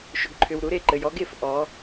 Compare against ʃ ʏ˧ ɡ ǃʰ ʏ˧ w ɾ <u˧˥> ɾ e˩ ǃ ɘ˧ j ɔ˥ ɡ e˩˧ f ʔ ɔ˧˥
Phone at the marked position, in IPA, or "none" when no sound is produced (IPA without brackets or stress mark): u˧˥